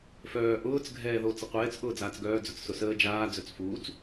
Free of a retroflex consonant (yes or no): yes